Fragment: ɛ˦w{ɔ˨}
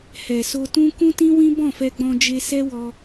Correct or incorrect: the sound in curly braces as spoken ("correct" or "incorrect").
incorrect